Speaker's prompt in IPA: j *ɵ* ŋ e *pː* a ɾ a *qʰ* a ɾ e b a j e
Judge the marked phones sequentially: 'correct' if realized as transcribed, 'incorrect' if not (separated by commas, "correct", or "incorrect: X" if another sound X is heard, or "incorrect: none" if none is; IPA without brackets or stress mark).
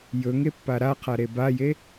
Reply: correct, correct, correct